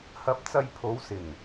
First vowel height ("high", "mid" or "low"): low